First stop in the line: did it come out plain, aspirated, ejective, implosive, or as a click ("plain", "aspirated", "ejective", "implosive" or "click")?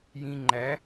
click